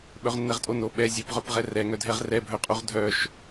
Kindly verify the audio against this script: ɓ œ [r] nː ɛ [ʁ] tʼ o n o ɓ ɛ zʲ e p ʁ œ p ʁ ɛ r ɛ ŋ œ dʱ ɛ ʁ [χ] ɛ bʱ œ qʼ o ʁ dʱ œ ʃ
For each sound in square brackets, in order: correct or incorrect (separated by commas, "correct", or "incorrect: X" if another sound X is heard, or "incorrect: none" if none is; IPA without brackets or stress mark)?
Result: incorrect: ʁ, correct, incorrect: r